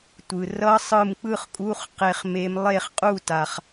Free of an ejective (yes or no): no